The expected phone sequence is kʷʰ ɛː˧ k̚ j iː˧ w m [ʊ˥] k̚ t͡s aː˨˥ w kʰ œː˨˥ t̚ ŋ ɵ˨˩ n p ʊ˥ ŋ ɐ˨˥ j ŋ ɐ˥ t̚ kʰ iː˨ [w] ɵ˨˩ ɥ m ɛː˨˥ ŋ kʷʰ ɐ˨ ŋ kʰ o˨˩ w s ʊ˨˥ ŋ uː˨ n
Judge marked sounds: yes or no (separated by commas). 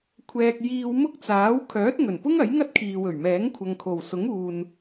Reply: yes, yes